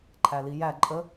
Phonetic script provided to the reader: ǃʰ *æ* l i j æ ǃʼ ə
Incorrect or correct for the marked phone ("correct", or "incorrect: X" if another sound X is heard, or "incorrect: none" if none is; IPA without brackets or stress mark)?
correct